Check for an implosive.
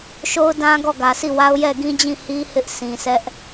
absent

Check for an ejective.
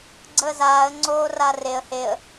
absent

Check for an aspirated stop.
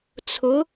present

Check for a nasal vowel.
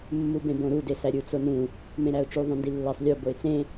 present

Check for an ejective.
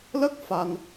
absent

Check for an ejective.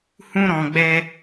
absent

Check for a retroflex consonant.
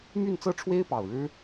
present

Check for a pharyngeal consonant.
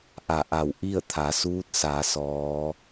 absent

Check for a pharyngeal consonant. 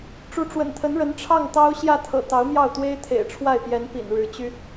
absent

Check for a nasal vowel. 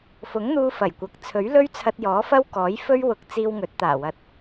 absent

